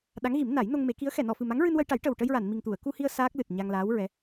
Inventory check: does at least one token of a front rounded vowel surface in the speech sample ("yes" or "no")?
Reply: no